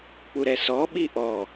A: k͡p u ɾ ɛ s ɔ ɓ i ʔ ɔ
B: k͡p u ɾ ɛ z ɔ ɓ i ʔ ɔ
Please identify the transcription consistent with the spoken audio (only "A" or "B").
A